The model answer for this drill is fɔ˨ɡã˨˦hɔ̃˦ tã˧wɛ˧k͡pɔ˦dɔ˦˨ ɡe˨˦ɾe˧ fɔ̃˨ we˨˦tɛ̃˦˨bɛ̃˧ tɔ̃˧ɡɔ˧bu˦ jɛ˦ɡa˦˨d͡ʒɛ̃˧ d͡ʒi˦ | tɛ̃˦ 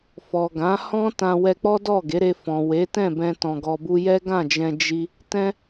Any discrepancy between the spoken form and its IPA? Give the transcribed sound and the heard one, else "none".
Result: a˦˨ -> ã˦˨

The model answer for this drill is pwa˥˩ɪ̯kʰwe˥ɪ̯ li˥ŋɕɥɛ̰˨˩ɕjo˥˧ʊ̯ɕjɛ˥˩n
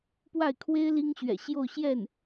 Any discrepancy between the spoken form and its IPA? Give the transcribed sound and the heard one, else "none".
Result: none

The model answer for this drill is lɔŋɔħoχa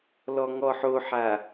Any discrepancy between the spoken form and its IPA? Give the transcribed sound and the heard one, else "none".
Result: χ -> ħ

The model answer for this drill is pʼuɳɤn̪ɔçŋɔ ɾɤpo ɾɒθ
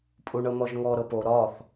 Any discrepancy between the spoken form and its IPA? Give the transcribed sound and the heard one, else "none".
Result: ç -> ʒ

